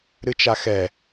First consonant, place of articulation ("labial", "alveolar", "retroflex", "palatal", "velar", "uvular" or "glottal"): alveolar